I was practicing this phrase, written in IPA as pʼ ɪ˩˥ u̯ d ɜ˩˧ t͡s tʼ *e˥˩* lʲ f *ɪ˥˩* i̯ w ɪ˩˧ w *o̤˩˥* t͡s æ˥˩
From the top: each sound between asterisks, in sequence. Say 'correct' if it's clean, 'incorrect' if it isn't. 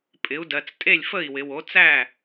correct, incorrect, incorrect

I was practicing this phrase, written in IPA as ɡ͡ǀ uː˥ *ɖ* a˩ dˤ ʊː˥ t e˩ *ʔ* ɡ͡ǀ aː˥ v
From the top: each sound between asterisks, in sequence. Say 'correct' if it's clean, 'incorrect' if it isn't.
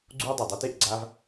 incorrect, correct

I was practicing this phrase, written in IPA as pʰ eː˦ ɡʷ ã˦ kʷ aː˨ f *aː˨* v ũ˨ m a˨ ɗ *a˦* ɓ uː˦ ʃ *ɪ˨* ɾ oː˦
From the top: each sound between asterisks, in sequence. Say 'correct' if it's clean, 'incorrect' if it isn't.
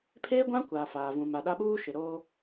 correct, correct, correct

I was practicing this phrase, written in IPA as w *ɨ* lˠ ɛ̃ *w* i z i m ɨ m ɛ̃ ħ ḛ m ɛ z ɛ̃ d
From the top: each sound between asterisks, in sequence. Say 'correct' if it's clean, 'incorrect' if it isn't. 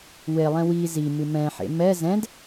incorrect, correct

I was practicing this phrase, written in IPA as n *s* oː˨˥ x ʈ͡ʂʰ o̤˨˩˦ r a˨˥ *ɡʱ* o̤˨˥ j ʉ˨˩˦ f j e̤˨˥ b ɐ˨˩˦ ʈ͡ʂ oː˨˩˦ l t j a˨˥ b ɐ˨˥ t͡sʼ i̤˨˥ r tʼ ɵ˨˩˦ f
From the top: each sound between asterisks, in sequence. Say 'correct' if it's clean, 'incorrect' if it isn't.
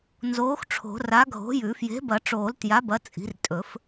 incorrect, correct

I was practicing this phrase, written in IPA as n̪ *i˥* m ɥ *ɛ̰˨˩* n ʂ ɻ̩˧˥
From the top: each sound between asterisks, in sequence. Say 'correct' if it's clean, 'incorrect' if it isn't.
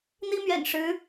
correct, correct

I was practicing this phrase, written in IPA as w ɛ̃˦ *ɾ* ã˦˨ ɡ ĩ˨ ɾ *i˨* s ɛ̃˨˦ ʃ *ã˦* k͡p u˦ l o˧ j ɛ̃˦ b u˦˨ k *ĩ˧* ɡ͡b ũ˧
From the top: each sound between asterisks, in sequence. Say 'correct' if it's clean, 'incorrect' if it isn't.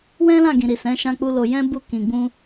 incorrect, correct, correct, incorrect

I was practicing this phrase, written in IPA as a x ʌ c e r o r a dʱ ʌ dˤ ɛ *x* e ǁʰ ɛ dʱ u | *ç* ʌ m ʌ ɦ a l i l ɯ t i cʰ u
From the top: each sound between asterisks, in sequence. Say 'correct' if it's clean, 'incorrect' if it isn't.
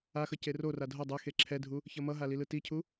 correct, correct

